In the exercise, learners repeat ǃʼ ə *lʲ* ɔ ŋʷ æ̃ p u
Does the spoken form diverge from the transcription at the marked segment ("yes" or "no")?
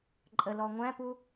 yes